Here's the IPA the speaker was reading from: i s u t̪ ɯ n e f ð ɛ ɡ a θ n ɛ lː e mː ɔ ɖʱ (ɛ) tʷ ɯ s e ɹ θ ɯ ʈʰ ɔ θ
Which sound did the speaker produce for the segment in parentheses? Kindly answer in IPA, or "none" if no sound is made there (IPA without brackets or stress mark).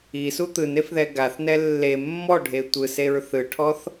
e